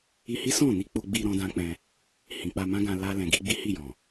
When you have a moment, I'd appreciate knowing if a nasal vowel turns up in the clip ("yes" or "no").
yes